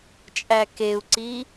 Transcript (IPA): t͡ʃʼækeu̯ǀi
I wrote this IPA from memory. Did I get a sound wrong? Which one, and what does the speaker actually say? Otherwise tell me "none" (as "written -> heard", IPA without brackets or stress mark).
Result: none